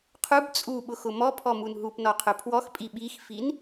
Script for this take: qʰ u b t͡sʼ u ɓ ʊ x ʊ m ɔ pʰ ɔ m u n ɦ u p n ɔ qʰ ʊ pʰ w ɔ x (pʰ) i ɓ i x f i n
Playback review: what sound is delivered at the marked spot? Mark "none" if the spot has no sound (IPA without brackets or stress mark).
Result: pʼ